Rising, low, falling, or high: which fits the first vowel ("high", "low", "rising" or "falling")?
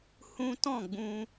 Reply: high